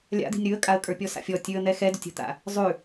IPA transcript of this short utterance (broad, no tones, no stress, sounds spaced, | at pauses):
lʲ a̰ d̪ i̤ nʲ ɾ ʉ ə̯ kʼ a ə̯ kʼ ə˞ pʲ ɔ s a̰ fʲ ɔ tʲ ʉ ə̯ n̪ ɛ x ɛ d ʊ tʲ ə̤ t̪ a̰ | zˤ ʉ